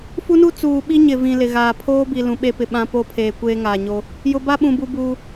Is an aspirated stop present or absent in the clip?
present